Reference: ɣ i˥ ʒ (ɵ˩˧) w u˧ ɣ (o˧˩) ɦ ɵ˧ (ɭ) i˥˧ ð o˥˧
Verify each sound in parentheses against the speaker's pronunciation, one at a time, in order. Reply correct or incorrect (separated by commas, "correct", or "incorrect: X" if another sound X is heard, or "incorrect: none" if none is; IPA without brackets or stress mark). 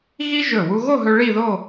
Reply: incorrect: ɵ˧˩, incorrect: o˥˧, correct